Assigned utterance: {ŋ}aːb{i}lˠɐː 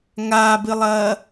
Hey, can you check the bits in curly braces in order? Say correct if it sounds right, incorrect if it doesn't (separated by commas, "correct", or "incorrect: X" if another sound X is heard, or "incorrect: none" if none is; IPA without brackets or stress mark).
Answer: correct, incorrect: ɨ